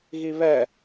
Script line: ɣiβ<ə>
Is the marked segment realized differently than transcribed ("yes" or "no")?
yes